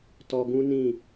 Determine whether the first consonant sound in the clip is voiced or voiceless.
voiceless